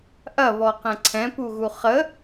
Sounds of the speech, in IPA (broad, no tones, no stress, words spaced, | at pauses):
ʔɐβɔqɛ̃ ǀʰɛ̃puɣu χə